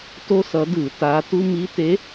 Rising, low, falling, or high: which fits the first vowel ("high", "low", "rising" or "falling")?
high